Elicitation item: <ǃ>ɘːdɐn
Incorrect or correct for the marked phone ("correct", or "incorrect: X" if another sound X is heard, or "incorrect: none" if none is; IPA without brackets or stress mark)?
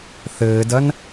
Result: incorrect: θ